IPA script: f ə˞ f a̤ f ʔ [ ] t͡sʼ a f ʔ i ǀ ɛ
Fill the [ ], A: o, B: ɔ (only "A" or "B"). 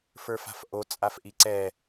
A